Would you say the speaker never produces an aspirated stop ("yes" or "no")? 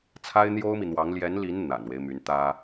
no